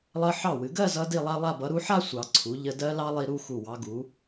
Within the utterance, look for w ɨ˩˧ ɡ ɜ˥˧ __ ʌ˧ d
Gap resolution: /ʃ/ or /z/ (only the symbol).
z